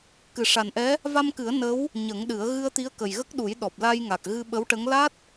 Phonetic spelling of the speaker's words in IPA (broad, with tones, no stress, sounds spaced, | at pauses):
k ɨ˨˩ ʂ a˨˩ n ʔ ɛ˧˥ | v a˧ m k ɨ˨˩˦ ə̯ n ə˧˥ w | ɲ ə˨˩˦ ŋ ɗ ɨ˨˩˦ ə̯ ɣ ɨ˧ ə̯ t̪ i˧˥ ə̯ k ə˨˩ j ɣ ə˦˥ k̚ ɗ u˨˩˦ j ɗ ɔ˨˩ p̚ l a˧ j ŋ a˨˩ k̚ ɣ ɨ˧ ɓ ə˧˥ w ʈ ə˧˥ ŋ l a˦˥ t̚